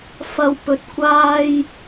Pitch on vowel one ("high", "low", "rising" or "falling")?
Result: low